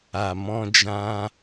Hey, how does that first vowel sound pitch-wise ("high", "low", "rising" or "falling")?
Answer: low